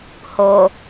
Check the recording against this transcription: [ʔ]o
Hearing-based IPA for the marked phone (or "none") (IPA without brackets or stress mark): h